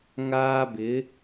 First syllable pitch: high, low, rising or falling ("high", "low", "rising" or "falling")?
high